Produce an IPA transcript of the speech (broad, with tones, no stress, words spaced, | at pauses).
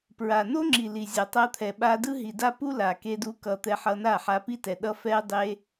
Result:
pɹa˨no˦ŋ͡ǁi˨li˨ zʲʌ˨tˤa˧t̪ʰɛ˨ɓa˧ dɯ˦ɦi˨da˦ pu˦la˨ke˧du˧ kʌ˨ t̪ɛ˧ħʌ˧na˦˨ħa˧ pi˦tɛ˨ ɗʌ˧ fɛ˧dˤe˧